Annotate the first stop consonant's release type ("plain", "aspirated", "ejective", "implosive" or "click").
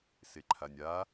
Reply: click